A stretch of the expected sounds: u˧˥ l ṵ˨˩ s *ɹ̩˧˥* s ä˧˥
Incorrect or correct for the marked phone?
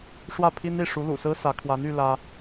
incorrect: ɹ̩˥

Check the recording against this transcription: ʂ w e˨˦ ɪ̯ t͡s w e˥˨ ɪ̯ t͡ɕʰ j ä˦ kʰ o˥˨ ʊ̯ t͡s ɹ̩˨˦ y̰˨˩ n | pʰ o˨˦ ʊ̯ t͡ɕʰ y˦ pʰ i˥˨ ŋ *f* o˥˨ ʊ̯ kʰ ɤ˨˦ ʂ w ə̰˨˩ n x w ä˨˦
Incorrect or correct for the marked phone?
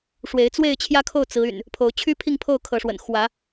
incorrect: pʰ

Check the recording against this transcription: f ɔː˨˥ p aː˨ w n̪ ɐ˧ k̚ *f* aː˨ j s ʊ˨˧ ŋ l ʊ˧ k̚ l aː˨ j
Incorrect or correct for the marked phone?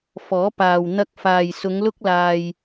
correct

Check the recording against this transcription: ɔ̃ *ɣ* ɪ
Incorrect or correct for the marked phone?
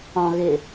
correct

